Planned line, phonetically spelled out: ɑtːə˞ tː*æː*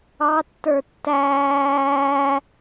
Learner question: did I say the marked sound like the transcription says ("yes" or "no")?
yes